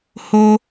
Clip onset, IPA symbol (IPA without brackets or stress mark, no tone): h